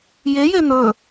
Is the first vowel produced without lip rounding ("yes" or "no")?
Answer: yes